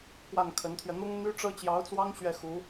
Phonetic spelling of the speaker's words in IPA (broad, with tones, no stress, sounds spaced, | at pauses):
k w a˥˩ n kʰ ə˧˥ n t̪ʰ ɥ ɛ˧ n̪ ʊ˥ ŋ n̪ y˥ ʈ͡ʂ ɤ˥ t͡ɕ j ɑ˧˥ ʊ̯ t͡s w ɑ˥ ŋ ɕ ɥ ɛ˥˩ x u˧˥